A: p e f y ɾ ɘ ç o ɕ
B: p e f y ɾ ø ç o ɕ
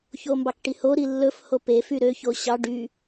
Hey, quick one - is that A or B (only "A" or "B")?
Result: B